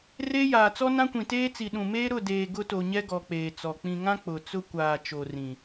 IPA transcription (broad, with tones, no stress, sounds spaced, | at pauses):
r eː˦ j aː˨ t͡s ɔ˦ n ã˦ kʷ ĩ˨ t eː˦ t͡s i˨ ɗ ũ˨ m eː˦ ɾ ʊ˦˨ d eː˨ ɡ ʊ˦ t o˨ ɲ ɛ˦ ɡ ɔ˨ k͡p eː˨ t͡s ɔ˨ k͡p ĩ˨ ŋ ã˦ k͡p ʊ˨ t͡s ʊ˦ kʷ aː˨ t͡ʃ o˨ r ĩ˨